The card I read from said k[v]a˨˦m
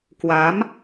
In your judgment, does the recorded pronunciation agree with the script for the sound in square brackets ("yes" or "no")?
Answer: no